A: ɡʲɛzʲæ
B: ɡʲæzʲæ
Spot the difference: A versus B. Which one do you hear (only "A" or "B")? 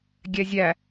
A